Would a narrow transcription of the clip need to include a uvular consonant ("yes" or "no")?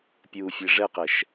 yes